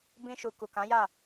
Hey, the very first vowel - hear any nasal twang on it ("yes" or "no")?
yes